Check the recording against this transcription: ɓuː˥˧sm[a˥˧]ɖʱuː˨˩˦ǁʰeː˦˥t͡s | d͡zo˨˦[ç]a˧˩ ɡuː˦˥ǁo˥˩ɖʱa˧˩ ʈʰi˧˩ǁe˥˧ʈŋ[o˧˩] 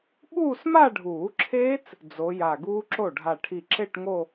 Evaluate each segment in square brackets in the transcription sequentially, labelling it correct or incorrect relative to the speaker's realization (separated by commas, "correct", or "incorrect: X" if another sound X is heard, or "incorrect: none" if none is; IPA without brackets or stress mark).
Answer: correct, incorrect: j, incorrect: o˥˧